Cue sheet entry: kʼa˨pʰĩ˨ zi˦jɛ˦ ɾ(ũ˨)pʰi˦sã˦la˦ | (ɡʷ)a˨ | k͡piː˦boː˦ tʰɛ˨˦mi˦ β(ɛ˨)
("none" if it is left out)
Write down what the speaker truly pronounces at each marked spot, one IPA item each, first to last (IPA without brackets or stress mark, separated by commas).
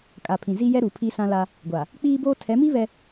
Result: u˨, ɡʷ, ɛ˦